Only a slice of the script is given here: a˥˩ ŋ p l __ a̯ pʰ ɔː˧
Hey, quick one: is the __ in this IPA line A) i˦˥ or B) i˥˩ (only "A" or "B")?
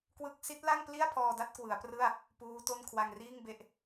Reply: B